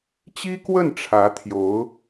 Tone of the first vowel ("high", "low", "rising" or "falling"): high